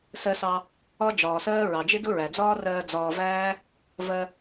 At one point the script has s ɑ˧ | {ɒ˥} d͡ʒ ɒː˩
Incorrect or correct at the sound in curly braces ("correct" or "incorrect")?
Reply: correct